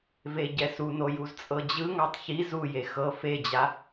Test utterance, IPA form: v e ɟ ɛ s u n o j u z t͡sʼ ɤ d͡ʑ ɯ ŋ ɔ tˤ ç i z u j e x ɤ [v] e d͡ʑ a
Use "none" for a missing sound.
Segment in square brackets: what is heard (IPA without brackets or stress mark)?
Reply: f